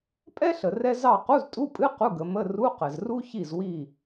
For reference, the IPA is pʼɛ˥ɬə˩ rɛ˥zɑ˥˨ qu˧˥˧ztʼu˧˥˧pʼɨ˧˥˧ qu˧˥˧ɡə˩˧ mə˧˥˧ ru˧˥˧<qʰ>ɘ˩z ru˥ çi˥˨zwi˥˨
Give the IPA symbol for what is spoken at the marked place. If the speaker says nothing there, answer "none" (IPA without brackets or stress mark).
q